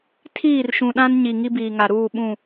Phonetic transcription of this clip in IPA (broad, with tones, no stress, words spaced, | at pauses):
tʰiː˦˨rʃũ˨ɗã˦n ɲi˨ŋi˦biː˨ŋa˨ ɾuː˦˨ɓũ˦˨